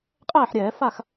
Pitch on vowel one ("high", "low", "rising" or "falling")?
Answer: falling